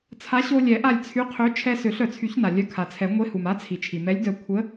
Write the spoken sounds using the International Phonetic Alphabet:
t͡sʰ a˨˥ ɕ o˧ lʲ ɛ˨˩˦ ʔ a˧˩ lʲ t͡sʰ y˨˥ qʰ ø˨˥ t͡ʃʰ ɛ˧ s ø˨˩˦ ɬ œ˩ t͡sʰ y˨˩˦ ç n a˩ lʲ œ˨˥ kʰ a˩ t͡sʰ ɛ˨˩˦ ŋʷ e˨˥ h u˩ m a˨˥ t͡sʰ i˩ t͡ʃʰ i˩ m ɛ˨˥ lʲ d œ˧˩ kʷʰ ə˨˥

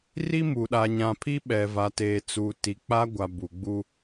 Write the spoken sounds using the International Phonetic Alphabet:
r i˦ m u˨ ɗ a˨ ɲ ã˨ pʰ i˦ ɓ ɛ˨ v a˨ t eː˨ t͡s uː˨ t i˨ k͡p a˦ ɡʷ a˨ b u˨ ɡ͡b u˦

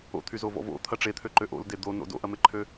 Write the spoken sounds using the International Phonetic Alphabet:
o̰ t̪ʰ y z o v ɔ̰ v o̰ t̪ʰ ɐ ʈ͡ʂ e t̪ʰ ø ǃ ø ʔ o̰ l d e d̪ o n o̰ d o̰ ʔ ɐ m e ǃʰ ø

